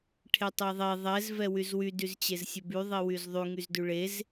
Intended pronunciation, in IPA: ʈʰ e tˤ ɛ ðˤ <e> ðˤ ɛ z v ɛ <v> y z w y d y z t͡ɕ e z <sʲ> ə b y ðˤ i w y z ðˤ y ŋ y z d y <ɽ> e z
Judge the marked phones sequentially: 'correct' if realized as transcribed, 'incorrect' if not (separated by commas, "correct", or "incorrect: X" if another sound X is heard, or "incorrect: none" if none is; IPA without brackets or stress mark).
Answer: correct, incorrect: w, correct, incorrect: ɭ